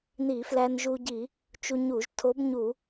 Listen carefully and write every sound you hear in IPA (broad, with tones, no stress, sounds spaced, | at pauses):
n i˧˩˧ f l æ˧ n ʒ u˧ ɟ i˧˩˧ | t͡ʃ u˧ ɲ u˧˩˧ ʒ tʰ o˧˥ b ɲ u˧˩˧